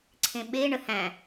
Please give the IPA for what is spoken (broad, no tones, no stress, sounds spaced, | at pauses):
ǀʰ ẽ ɓ e ɳ ə h æ̃